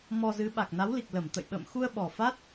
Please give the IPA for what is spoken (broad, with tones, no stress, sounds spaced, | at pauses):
m ɔ˧ z ɨ˨˦ ɓ a˨˩ k̚ n a˨˦ w l i˨˩ k̚ l ə˧˩ m t̪ ə̰˧˨ j ɓ ə̰ː˧˨ m x u˧ ə̯ ɓ ɔ˨˩ f a˦˥ t̚